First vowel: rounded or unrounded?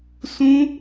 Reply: rounded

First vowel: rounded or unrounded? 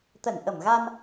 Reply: unrounded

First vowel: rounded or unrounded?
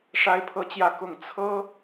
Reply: unrounded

